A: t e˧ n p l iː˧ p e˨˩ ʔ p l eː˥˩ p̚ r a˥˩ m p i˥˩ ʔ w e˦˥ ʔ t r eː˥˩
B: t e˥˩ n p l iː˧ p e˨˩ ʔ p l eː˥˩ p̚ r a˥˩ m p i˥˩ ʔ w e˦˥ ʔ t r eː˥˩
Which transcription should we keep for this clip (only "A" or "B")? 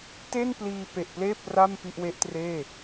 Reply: B